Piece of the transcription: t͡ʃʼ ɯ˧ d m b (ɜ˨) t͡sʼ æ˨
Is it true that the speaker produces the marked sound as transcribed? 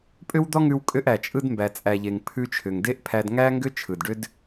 no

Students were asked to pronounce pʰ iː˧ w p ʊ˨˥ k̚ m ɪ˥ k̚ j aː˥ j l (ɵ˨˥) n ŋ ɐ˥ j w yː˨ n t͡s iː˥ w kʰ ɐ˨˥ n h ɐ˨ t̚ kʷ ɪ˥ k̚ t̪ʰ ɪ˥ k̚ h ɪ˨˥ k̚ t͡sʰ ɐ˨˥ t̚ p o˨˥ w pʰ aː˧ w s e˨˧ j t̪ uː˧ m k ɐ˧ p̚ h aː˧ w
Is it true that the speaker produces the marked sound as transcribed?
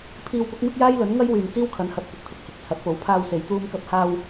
yes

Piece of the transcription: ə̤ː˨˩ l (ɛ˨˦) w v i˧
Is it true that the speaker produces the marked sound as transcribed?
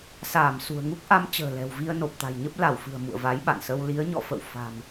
no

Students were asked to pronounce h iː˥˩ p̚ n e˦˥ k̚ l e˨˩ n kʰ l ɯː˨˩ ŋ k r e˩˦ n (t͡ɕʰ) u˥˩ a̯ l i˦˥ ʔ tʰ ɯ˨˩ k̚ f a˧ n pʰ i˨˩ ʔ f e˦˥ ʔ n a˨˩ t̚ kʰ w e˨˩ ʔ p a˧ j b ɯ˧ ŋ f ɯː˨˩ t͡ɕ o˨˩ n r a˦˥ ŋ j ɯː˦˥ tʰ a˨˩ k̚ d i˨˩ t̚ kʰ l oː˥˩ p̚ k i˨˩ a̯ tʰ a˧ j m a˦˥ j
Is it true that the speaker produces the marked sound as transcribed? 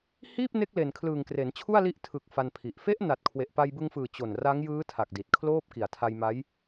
yes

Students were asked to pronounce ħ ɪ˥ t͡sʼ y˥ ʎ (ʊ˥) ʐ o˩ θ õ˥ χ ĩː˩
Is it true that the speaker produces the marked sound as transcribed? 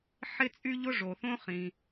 yes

